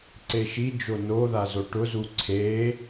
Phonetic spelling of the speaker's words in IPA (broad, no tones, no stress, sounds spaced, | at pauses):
ǀ e ʃ i d͡ʒ o n o ð a z o ʈ ʊ z u ǀʰ e